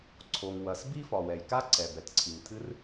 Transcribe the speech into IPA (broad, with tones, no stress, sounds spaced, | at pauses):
ǀʰ o˩ ŋ w ɐ˩ s b i˥ f ɒ˩ w ɛ˩ j k a˥ ǀ ɛ˩ b ɛ˩ t ǀʰ i˩ ŋ tʰ ɨ˥ r